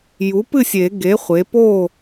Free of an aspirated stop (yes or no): yes